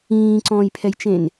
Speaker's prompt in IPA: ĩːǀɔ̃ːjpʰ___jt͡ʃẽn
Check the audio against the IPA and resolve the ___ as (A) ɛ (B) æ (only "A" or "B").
A